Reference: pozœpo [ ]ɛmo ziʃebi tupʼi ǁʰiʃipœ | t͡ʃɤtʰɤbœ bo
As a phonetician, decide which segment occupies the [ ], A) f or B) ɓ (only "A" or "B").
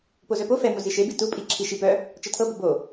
A